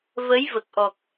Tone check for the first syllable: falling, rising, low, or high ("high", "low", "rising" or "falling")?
rising